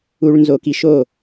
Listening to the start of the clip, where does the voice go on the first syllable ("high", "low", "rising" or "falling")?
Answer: high